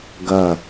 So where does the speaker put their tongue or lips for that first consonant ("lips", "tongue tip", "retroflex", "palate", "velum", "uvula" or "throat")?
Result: velum